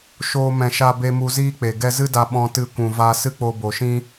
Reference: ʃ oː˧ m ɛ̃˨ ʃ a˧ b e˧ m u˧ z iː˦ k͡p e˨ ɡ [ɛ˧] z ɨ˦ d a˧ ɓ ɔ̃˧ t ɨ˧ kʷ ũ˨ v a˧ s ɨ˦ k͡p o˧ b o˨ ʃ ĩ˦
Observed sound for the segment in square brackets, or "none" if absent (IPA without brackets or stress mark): ɛ˧